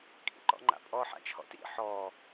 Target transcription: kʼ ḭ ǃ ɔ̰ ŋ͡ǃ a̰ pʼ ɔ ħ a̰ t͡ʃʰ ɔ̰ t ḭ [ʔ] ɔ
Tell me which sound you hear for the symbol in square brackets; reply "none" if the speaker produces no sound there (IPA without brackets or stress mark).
ħ